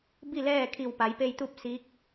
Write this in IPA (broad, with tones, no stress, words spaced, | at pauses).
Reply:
bi˥˨lɛː˥˨ kʰi˧˩wpa˩˧jpe˧jt̪u˥˨p̚ si˧˥k̚